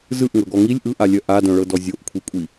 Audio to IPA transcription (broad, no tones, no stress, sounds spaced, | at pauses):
z ɯ ʔ ŋ ɤ ɡ ɔ ŋ i lʲ ʔ ɯ ʔ a lʲ œ ʔ a d œ̃ ɭ ɤ d ɔ zʲ o ʔ kʷʰ i kʷʼ i